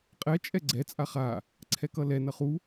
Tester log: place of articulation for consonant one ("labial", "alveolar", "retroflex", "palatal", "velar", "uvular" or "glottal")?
uvular